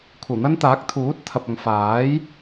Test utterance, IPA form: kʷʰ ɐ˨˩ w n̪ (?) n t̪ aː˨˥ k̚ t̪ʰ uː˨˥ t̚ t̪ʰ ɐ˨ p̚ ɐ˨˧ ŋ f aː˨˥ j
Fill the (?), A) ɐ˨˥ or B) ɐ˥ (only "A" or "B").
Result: B